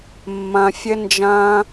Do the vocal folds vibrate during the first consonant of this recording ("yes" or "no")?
yes